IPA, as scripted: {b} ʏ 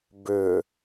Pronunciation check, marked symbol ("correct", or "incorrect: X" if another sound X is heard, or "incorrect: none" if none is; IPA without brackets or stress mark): correct